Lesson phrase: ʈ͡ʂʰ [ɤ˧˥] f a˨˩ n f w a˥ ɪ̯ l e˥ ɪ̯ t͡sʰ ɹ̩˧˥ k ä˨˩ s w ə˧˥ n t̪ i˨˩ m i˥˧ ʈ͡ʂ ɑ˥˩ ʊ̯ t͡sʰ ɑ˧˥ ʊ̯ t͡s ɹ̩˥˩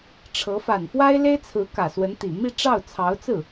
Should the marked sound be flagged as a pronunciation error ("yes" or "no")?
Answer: no